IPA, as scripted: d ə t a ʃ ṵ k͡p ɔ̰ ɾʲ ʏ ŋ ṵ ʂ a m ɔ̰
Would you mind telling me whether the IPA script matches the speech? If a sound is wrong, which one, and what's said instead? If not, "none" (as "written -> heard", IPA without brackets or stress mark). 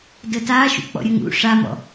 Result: ʏ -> ə